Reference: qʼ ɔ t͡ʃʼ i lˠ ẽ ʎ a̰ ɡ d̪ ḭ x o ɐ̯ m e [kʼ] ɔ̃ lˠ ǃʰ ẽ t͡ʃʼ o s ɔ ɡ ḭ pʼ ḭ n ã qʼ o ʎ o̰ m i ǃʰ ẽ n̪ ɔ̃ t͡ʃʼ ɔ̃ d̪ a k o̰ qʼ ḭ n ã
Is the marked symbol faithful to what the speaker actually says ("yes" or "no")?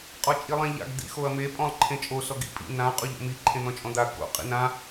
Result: no